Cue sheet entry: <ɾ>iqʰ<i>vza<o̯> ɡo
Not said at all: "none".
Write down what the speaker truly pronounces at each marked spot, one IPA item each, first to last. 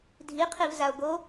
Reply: dʱ, i, o̯

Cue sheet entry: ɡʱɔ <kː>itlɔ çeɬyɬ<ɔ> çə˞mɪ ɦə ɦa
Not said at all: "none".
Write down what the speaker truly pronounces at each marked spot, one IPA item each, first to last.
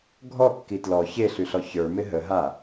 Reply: kː, ɔ

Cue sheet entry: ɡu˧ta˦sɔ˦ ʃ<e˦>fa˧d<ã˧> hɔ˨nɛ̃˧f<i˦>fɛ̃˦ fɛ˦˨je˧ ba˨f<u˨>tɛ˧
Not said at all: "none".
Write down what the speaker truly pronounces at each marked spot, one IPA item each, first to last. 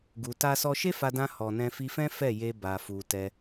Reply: e˦, ã˧, i˧, u˨

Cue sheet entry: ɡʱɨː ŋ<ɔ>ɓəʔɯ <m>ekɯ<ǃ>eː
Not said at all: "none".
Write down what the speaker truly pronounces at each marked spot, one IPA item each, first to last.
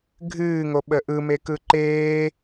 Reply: o, m, ǃ

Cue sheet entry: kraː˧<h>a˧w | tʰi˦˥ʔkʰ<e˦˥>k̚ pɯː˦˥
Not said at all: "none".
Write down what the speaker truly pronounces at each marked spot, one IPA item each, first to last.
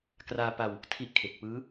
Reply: p, e˨˩

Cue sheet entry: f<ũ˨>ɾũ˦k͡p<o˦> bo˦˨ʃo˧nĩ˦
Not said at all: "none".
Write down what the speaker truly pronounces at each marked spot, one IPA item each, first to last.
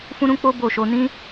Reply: ũ˦, o˦

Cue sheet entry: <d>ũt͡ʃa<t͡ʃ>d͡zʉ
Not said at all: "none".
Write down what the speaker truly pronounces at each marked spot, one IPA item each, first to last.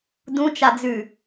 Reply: d, none

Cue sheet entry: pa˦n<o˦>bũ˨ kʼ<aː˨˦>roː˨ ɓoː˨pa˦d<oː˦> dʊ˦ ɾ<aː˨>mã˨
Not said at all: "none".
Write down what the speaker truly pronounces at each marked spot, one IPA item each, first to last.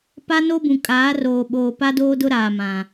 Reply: o˦, aː˨˦, oː˦, aː˨

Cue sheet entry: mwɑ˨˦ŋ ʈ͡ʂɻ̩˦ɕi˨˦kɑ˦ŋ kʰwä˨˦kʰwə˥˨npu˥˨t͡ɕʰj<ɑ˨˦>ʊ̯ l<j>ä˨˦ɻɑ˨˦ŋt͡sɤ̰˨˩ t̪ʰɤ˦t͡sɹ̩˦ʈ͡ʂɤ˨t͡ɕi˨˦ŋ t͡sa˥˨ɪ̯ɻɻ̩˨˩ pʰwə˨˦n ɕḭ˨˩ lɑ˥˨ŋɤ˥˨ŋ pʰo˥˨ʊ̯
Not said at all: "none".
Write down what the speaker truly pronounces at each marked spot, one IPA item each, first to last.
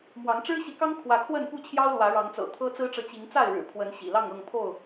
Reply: ɑ˦, w

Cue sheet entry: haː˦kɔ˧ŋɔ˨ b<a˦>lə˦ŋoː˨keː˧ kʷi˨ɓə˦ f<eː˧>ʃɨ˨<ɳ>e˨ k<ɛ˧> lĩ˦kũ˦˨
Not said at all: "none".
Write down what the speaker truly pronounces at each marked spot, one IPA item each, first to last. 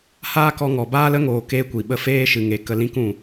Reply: aː˦, eː˦, ŋ, ə˧

